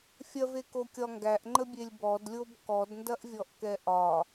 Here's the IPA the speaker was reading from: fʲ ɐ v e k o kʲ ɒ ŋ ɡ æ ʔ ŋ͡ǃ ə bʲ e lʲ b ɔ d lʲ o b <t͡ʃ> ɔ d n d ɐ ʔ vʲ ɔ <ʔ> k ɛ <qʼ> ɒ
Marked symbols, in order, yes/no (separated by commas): no, yes, no